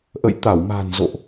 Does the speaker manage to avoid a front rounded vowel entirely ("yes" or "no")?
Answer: yes